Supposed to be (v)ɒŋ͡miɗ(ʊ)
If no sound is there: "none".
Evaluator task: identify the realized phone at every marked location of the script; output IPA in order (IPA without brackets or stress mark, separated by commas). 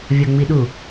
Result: vʲ, u